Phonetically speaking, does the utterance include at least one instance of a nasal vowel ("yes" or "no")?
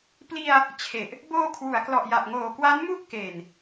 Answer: no